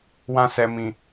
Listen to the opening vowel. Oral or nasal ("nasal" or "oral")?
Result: nasal